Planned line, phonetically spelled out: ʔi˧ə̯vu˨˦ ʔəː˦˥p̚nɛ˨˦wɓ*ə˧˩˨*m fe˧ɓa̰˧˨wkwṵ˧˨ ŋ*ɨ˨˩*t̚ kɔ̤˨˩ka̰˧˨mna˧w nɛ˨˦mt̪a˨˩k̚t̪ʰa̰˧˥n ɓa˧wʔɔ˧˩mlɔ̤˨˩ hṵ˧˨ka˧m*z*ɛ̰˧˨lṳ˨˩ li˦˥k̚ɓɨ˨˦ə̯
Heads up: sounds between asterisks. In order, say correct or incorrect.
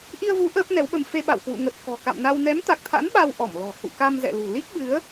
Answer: incorrect: ə˧, incorrect: ə˨˩, correct

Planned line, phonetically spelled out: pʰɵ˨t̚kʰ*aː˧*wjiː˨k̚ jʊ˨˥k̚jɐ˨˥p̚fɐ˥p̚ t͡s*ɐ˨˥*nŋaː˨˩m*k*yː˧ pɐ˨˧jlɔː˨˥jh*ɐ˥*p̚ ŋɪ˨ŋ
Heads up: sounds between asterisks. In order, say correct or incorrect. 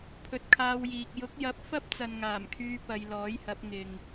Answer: correct, incorrect: ɐ˨, incorrect: kʰ, incorrect: ɐ˨˥

